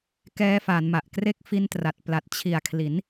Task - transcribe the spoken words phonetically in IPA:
kɛː˧fa˩˦nma˨˩ʔ kre˦˥k̚fi˧ntra˨˩t̚ pla˨˩t̚t͡ɕʰi˨˩a̯kʰli˩˦n

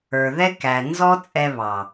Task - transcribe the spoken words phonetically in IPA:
ə˞˨ðɛ˦kæ˨ nzɔ˦ t͡sʼɛ˧βɑ˨

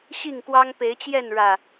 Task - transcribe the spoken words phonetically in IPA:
ɕi˥˨ŋkwɑ˦ŋpe˨˦ɪ̯t͡ɕjɛ˥˨n ɻä˨˩

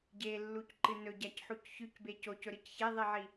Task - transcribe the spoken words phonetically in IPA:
ɟelːucǃɨ nɵɟacħuc çʉcbe cocɵɾɨc çeðˤiʕi

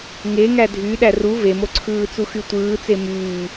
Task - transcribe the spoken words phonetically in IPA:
ŋeŋæ dʱy ɗæru vemoǀʰɯːt͡su xytʷɯːt͡se myː

